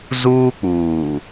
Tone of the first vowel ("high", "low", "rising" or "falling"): high